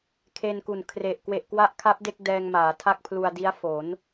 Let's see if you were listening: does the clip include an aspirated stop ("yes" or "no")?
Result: yes